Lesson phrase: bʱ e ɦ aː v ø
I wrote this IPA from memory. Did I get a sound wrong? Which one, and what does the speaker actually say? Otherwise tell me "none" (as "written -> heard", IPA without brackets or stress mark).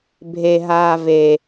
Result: ø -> e